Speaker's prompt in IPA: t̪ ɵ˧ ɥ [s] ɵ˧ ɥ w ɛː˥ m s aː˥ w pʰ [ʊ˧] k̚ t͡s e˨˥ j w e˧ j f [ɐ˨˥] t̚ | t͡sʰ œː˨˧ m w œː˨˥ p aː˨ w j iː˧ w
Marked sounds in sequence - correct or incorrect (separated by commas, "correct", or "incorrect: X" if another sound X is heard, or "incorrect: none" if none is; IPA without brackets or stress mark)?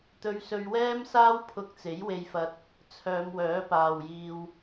correct, correct, incorrect: ɐ˧